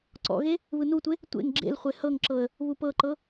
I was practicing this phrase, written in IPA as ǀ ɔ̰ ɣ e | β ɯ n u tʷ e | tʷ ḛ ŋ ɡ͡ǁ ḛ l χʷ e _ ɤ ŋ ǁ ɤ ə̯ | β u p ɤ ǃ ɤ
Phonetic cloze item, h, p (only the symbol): h